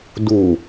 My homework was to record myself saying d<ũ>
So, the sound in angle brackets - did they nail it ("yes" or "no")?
no